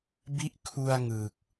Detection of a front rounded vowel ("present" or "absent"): absent